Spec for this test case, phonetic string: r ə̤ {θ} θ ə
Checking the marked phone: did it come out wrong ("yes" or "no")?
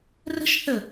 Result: yes